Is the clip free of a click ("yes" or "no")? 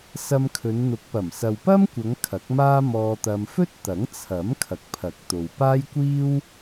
yes